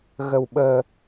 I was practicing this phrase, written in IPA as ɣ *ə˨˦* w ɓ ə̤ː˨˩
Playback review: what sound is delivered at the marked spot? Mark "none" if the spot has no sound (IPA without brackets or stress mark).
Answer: ə̤˨˩